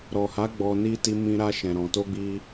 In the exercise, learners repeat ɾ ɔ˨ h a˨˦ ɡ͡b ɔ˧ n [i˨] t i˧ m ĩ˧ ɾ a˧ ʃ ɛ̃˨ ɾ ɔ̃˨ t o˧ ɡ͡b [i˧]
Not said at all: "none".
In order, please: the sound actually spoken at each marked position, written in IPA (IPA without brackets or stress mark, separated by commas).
i˦, i˧